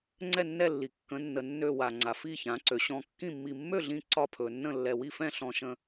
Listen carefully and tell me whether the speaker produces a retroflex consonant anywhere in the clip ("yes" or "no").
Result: no